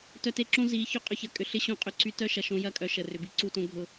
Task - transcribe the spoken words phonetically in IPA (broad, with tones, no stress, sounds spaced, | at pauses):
t œ˧ t e˧ ǁ õ˦ z i˨˦ ç ʏ˦ qʼ ʏ˦˨ ç ɐ˦ kʼ ʏ˧ ɬ ɪ˦ ɕ õ˦ qʼ ʏ˧ ǀ y˧ t œ˦ ʃ ɐ˨ ʃ õ˧ j ɐ˦ kʼ œ˨ ʃ ə˨ r ʏ˨ b i˧ ǀ u˦˨ t õ˦ ɡʱ ʊ˧